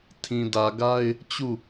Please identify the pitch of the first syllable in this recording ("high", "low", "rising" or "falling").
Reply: low